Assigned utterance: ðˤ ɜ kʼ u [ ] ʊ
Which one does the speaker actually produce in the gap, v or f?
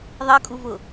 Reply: v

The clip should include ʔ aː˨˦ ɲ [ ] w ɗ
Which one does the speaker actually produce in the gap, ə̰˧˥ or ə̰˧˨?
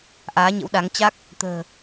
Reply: ə̰˧˥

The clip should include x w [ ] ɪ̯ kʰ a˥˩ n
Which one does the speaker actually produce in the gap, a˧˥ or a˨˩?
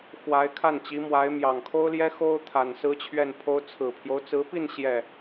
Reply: a˧˥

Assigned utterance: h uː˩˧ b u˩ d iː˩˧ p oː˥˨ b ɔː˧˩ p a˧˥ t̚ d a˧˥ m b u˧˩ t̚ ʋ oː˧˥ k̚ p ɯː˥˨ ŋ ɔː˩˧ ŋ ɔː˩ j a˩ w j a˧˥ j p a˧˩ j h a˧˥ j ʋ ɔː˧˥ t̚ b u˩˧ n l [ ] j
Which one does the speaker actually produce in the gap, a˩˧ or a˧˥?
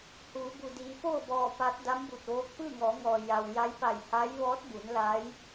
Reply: a˧˥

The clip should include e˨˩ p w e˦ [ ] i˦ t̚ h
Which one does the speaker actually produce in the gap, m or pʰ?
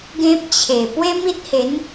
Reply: m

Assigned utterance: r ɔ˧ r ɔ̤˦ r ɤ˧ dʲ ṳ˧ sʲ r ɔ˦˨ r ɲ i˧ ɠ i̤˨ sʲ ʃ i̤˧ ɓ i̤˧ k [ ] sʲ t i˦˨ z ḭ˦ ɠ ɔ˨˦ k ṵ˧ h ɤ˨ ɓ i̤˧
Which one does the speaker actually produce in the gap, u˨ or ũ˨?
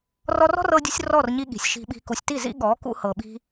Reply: u˨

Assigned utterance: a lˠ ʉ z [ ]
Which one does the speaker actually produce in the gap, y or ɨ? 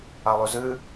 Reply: ɨ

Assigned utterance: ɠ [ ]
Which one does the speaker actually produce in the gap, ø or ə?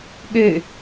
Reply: ø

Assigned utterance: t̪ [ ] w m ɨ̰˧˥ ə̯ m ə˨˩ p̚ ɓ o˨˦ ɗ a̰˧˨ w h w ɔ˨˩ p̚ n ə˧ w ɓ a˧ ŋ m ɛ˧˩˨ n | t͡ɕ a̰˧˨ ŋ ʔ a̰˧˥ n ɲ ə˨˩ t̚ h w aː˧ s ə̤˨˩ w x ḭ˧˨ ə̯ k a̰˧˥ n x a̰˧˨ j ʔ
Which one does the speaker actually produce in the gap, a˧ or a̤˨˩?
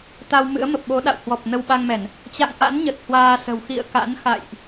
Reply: a˧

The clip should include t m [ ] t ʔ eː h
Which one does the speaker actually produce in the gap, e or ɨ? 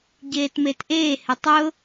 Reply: e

